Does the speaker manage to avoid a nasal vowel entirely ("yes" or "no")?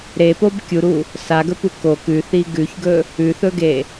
yes